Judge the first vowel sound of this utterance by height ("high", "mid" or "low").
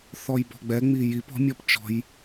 mid